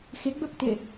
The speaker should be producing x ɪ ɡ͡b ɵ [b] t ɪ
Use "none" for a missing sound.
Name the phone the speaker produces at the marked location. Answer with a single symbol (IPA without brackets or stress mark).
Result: p